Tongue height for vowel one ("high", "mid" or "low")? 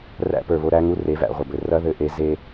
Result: low